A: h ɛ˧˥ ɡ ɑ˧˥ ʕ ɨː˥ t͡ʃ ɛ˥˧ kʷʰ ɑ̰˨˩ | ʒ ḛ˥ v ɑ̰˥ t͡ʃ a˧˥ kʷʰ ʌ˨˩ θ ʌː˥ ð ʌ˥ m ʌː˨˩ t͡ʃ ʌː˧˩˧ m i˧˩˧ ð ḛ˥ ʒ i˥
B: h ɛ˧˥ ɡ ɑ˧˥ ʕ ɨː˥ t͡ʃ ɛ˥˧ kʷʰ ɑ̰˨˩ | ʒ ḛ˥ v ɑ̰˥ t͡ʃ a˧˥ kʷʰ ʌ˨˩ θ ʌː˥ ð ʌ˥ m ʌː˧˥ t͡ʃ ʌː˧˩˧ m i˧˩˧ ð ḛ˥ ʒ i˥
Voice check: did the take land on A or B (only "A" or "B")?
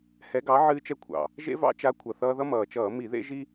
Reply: A